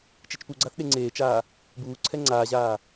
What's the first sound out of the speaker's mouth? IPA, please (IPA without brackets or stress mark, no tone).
t͡ʃ